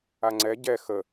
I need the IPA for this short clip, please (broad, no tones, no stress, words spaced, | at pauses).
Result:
aŋ͡ǀɛ ɟɛ xə